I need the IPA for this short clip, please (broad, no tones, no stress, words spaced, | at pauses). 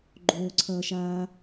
ɡ͡ǃoːǀʰʌːʃaː